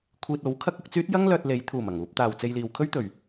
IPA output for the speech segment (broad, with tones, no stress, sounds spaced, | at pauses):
kʷʰ iː˧ t̚ o˨˥ w kʰ ɐ˥ k̚ ʊ˧ k̚ t͡s yː˥ t̚ j ɐ˥ ŋ l œː˧ t̚ l e˨˧ j t̪ʰ uː˨˩ m ɐ˨˩ ŋ uː˨ p̚ t̪ aː˨˩ w t͡s e˧ j l iː˨ w kʰ ɵ˥ ɥ t̪ ɵ˨˩ ɥ